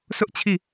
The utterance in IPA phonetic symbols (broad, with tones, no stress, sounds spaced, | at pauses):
sʰ ʊ˦ ʔ t͡ɕʰ i˦˨